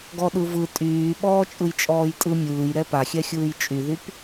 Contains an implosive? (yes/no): yes